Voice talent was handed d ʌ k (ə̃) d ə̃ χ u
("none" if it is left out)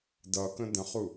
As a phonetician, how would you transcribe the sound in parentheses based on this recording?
ə̃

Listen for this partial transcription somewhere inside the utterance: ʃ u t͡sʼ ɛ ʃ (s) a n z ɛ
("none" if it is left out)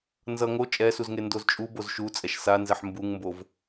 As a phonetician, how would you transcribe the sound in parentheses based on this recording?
s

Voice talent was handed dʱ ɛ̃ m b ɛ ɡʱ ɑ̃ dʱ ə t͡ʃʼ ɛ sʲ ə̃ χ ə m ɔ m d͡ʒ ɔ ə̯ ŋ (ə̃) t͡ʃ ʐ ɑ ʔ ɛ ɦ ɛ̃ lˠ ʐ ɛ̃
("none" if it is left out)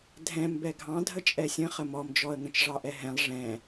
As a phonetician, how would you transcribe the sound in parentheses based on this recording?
ə̃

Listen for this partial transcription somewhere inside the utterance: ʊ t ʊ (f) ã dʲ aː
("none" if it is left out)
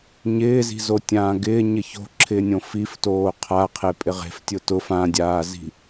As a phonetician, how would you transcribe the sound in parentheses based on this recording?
f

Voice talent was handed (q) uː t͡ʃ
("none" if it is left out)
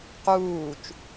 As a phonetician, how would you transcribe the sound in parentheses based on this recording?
q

